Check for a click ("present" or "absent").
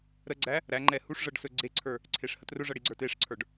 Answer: present